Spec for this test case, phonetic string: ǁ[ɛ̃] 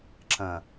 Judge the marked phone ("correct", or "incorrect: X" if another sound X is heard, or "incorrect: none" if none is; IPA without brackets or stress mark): incorrect: ə̃